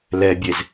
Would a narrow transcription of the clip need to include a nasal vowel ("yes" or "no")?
no